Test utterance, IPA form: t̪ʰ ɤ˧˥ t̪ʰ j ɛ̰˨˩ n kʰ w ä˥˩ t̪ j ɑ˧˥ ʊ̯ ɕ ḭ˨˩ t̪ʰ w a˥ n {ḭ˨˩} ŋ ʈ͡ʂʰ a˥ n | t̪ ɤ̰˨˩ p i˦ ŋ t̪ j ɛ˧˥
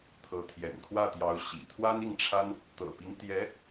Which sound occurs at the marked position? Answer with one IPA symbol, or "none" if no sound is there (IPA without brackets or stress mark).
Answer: i˥˩